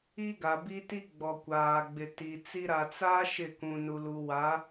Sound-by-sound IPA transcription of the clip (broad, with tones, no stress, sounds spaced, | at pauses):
i˦ ɡ a˨ b i˦ t i˦ ɡ͡b ɔ˨ kʷ aː˨ ɡ͡b ɪ˨ t i˨ t͡s i˦ ɾ a˨ t͡s a˦ ʃ ɪ˦˨ k ũ˨ n u˨ l u˨ w a˨˦